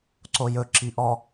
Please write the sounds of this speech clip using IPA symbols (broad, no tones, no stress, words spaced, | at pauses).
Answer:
ǀojɵ ǁiʔɔ